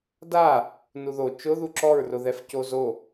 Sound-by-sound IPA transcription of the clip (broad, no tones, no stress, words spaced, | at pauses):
da | nuðo t͡ʃʊ ðuǁɔɹ rʊðɛfcozo